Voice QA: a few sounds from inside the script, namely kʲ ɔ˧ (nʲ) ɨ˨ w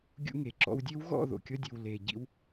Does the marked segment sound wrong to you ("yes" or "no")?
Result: yes